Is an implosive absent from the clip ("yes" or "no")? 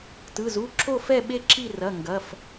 no